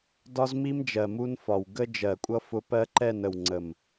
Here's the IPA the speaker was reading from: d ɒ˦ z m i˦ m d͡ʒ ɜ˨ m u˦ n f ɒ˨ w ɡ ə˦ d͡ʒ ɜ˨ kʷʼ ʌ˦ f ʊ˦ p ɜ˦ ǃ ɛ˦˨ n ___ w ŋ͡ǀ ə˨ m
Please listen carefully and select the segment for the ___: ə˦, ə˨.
ə˨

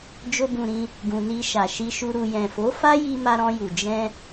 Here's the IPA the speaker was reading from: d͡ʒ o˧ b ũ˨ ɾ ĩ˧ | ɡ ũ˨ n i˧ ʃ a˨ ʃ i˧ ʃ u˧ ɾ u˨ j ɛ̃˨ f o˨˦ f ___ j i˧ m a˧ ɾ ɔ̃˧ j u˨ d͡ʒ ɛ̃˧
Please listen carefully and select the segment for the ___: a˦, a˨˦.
a˦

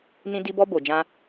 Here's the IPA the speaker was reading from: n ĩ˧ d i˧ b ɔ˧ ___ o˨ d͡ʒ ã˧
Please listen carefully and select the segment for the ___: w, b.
b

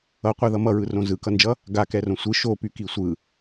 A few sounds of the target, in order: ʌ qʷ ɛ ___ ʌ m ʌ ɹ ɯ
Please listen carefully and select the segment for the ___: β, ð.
ð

